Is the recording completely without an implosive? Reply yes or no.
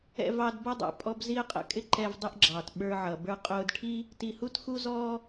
no